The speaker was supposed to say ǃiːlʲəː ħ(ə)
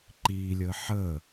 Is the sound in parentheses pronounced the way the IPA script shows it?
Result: yes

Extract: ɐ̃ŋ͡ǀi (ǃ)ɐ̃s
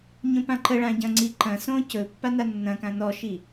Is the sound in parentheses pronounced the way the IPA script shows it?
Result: yes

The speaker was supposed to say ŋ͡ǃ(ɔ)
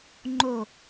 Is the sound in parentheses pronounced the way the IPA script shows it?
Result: no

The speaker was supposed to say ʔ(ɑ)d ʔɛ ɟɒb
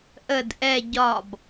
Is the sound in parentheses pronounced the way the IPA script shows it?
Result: no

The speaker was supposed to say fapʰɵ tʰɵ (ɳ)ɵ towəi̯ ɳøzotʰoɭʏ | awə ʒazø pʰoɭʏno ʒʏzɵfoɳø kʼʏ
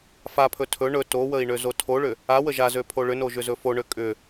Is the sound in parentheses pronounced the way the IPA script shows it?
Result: yes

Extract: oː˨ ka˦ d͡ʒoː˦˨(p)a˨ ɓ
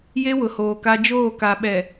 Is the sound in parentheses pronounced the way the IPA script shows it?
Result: no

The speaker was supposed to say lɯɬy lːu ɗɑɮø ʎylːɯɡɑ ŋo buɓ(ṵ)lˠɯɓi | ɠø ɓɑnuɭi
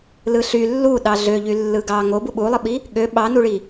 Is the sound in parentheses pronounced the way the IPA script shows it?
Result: no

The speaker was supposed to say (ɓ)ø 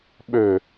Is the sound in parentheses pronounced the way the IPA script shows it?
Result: yes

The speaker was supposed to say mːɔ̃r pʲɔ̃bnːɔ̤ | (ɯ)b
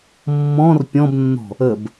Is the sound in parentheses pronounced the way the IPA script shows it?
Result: no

